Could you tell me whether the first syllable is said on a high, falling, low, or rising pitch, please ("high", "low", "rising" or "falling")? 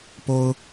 high